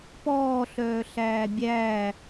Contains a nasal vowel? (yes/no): no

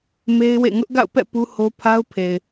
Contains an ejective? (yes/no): no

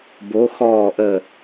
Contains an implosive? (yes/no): no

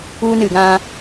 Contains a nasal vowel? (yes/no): yes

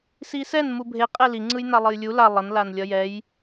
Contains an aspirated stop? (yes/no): no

